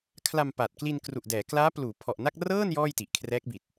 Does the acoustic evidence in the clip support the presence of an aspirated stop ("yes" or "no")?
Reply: yes